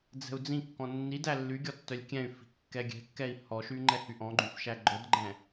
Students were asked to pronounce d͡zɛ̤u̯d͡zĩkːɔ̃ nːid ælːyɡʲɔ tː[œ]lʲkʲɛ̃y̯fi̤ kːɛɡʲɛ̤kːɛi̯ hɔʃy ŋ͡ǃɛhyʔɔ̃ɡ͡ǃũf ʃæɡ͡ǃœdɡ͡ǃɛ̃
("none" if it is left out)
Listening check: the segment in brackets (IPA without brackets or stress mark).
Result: œ